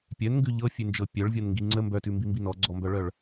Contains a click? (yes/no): yes